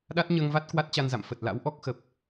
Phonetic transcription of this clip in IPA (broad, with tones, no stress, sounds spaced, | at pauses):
ɗ a˦˥ t̚ ɲ əː˧ ŋ v a˦˥ t̚ k w a˦˥ t̚ t͡ɕ a˧ n z a̰˧˨ m f ə˨˩ t̚ l a̰˧˥ w ʔ ɔ˦˥ k̚ x ə˨˩ p̚